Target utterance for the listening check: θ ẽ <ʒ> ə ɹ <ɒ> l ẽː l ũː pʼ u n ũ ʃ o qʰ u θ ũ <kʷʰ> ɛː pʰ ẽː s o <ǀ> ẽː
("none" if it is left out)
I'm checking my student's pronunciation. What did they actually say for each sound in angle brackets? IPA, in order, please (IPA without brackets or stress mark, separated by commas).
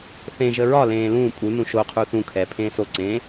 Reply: ʒ, ɒ, kʰ, ǀ